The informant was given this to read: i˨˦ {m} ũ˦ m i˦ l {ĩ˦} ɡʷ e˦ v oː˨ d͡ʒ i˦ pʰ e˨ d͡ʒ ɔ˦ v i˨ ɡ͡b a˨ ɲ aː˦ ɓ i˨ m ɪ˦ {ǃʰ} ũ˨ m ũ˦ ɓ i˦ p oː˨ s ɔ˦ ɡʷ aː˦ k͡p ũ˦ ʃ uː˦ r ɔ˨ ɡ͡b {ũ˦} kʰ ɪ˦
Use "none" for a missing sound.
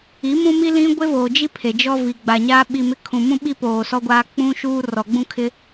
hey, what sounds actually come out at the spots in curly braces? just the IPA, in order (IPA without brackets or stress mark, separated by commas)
m, ĩ˦, kʰ, ũ˦